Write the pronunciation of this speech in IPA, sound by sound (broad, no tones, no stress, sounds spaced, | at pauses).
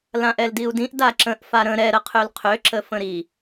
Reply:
l ã ʔ ɛ l d i u̯ d ĩ ʔ d a ǁ ə̃ ʔ f a ɾ ə̃ ɾ ɛ ɾ ə qʰ ø l qʰ ø ǁ ə f ə̃ ɾ i